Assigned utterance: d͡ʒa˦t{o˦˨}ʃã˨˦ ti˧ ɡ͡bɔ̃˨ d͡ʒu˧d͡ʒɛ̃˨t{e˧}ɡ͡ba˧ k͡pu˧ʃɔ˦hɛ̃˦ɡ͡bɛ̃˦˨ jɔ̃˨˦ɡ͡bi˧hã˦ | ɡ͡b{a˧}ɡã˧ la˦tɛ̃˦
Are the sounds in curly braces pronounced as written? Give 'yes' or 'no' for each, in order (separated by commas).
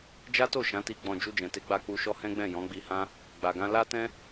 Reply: yes, yes, no